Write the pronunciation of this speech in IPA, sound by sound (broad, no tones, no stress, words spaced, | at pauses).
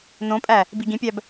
nõpʼæ | biɡĩpʲæb